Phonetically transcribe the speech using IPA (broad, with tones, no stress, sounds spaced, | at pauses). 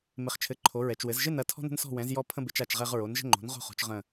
m ɪ˩˧˩ χ t͡ʃʰ ɘ˩˧˩ ǃʰ o˩˧˩ ɹ ɛ˧˩ t͡ʃ w ɘ˩˥ z ʒ ɪ˥˩ n ɐ˩˧˩ tʰ ɔ̤˦ n ə̤˦ n s ɔ̤˥˩ w ɛ̃˩˥ z j ɔ˦ pʰ ə̃˦ b ɪ˩˥ t͡ʃ a˥˩ t͡ʃ ʁ ɛ˦ ʁ ɹ o˩˥ n ʒ ə̤˦ ŋ͡ǃ o̤˩˥ n ʁ o̤˥˩ χ o̤˩˥ t͡ʃ ʁ ə̃˧˩